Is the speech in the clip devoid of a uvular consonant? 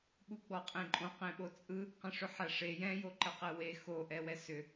no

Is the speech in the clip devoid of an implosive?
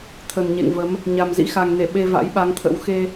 no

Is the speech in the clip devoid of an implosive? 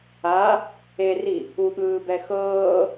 no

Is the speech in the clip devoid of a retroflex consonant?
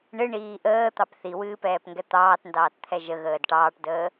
no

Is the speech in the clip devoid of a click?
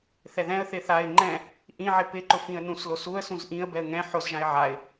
no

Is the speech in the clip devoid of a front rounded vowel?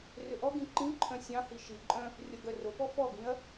no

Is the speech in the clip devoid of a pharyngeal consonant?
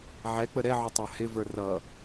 no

